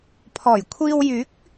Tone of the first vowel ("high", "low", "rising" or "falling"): low